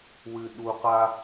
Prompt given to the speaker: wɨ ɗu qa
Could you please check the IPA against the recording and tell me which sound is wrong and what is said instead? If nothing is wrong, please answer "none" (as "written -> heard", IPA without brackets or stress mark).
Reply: none